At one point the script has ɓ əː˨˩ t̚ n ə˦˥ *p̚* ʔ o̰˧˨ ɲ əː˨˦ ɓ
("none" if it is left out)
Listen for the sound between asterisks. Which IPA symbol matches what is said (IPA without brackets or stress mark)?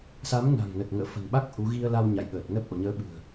p̚